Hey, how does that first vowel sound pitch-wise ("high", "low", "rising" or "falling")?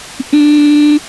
high